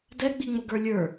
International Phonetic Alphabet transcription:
d ɛ ɡ͡b i ŋ͡m ʊ ɡ ə˞ lʲ ə˞

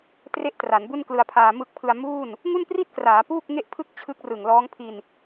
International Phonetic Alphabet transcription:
t r e˥˩ ʔ t r a˩˦ n b u˥˩ n k l ɯ˧ a̯ pʰ aː˧ m ɯ˦˥ k̚ pʰ ɯ˧ a̯ m uː˥˩ n | ŋ u˥˩ n p r i˥˩ t̚ k r aː˩˦ p uː˥˩ k̚ ŋ e˥˩ ʔ pʰ ɯ˥˩ k̚ t͡ɕʰ ɯ˦˥ k̚ r ɯ˨˩ ŋ l ɔː˦˥ ŋ pʰ i˧ n

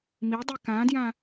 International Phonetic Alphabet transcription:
m i dˤ i k ã d j ã

